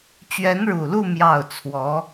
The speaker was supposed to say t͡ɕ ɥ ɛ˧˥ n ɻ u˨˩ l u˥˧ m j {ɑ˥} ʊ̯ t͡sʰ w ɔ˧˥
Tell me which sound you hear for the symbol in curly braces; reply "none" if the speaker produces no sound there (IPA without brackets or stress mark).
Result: ɑ˥˩